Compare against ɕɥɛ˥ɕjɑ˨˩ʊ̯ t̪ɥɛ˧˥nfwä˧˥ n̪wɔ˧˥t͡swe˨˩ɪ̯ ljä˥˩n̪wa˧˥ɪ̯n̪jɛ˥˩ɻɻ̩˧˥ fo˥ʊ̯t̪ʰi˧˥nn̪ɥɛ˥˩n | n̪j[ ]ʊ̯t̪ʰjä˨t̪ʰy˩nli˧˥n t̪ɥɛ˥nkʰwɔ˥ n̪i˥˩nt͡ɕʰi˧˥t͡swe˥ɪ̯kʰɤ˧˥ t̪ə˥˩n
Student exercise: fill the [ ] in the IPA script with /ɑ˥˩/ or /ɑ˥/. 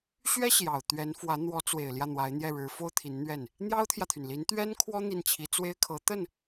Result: ɑ˥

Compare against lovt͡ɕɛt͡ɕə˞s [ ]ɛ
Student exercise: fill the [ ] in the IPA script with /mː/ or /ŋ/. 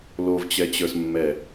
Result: mː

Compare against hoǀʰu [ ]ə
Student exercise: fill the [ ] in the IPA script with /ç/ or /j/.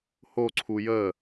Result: j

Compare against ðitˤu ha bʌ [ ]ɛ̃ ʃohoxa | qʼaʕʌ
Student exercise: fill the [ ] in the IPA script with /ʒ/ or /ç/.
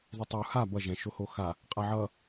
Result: ʒ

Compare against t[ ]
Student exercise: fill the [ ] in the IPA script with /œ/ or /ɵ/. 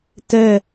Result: œ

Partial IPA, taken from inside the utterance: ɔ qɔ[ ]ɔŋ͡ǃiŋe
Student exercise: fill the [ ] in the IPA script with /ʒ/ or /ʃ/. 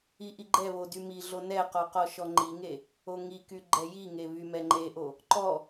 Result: ʃ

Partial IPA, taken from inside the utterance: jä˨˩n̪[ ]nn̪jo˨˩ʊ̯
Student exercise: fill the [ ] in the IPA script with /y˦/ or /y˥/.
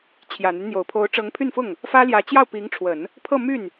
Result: y˦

